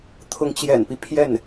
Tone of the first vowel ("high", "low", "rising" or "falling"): rising